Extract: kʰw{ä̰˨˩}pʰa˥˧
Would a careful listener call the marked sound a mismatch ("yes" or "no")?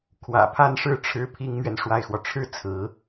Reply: no